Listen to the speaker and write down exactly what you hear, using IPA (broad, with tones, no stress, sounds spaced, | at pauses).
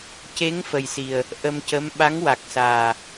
c e˧˥ ŋ f ə˨˩ j s i˨˩ ə̯ | ʔ ə˧ m c ə˧˥ m ɓ a˧˥ ŋ w a˨˩ k̚ s aː˨˩